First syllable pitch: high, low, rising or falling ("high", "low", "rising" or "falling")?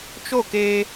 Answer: falling